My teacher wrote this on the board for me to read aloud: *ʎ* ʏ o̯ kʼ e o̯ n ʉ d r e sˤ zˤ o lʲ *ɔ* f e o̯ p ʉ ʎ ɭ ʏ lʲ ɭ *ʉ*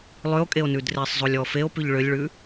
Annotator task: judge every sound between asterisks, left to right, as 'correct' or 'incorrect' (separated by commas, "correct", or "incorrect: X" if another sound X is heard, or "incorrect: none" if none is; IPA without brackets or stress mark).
incorrect: lˠ, correct, correct